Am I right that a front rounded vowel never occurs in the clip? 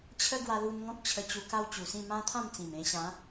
yes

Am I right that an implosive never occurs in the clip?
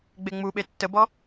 no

